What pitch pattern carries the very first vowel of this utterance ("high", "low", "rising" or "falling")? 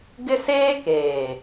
high